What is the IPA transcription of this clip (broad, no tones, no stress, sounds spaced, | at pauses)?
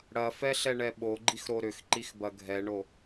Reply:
ɽ ɐ f ɛ ɬ ɛ ɳ ɛ ɓ o ɡ͡ǃ i x ɾ o ɾ ʏ x ǃ i x b ɐ ɡʱ ɛ ɳ o